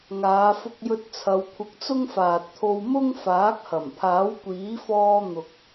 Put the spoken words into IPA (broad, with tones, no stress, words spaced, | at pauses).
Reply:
ŋaː˨˧fʊ˧k̚jɵ˧t̚ t͡sʰɐ˨˧wkʷʰɪ˧k̚t͡sʊ˥ŋ faː˨t̚t̪ʰo˧wmʊ˥ŋ faː˨˥k̚hɐ˨˩m pʰaː˨˥wkʷiː˨˥fɔː˧ n̪ʊ˨k̚